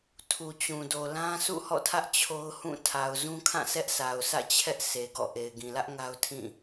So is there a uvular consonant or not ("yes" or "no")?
no